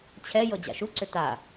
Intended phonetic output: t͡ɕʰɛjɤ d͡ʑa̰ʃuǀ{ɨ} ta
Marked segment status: incorrect: ʏ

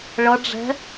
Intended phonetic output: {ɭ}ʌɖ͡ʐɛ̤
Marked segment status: correct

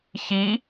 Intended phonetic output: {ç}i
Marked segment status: correct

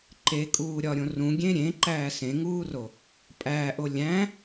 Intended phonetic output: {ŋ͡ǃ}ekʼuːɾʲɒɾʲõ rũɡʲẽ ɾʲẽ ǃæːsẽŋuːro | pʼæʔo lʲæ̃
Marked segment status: incorrect: ǃ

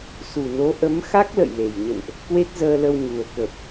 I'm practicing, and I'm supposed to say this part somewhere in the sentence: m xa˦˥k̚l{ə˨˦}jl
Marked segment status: incorrect: ə̰˧˨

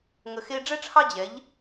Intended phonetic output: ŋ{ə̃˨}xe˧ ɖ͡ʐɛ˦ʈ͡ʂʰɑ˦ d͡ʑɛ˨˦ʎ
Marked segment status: incorrect: ə˨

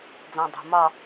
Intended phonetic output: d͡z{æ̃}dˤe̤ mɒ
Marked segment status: correct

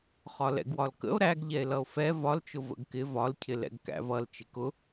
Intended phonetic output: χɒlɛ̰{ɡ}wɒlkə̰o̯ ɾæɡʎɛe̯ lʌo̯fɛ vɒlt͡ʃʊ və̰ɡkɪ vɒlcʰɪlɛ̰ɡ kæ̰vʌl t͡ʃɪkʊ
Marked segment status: correct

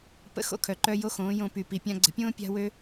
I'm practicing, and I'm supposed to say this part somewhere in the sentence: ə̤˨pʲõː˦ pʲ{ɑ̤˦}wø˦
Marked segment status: incorrect: a̤˦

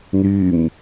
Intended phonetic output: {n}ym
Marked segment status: correct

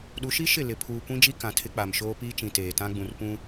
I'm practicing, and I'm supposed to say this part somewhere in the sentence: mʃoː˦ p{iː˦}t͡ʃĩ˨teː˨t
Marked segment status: correct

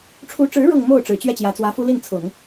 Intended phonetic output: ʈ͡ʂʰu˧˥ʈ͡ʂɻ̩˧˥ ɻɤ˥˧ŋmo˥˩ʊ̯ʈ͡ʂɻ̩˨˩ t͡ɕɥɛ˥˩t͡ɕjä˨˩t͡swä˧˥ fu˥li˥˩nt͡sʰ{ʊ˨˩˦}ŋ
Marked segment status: correct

